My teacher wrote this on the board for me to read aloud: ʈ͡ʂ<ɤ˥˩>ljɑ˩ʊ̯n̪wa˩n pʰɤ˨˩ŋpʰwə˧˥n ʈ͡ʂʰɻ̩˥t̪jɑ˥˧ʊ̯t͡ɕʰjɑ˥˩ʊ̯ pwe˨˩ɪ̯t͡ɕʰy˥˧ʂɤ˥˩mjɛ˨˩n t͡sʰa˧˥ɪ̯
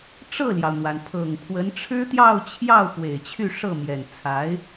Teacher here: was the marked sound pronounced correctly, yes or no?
yes